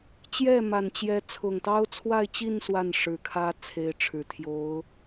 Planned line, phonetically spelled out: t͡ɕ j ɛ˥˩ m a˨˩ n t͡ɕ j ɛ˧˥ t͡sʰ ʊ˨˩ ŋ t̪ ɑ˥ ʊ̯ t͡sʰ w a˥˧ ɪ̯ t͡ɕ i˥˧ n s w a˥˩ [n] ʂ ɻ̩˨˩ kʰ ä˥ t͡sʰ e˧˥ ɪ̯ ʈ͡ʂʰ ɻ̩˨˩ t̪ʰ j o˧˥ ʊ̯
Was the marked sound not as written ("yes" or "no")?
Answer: no